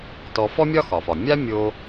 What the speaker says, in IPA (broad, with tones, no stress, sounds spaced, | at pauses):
t ɔ˧ f ɔ˥ mʲ ɒ˥ x ɒ˩ f ɒ˩ mʲ a˥ mʲ o˧